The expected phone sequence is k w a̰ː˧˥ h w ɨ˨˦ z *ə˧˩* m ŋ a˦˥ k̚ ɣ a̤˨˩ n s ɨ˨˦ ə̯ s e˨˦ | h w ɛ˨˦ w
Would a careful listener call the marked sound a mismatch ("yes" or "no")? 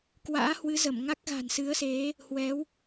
no